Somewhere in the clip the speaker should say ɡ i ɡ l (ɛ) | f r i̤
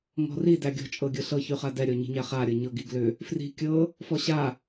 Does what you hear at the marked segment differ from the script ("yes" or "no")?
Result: yes